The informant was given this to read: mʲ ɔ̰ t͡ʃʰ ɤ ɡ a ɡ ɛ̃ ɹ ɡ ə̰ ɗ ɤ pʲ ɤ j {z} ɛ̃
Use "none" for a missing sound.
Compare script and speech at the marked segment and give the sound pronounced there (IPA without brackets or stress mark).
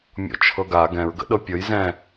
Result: z